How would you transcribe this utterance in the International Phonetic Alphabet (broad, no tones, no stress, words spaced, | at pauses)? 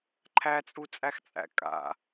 ǃʰæt͡sʼut͡sʼæxt͡sʼæ̰ kʼa̰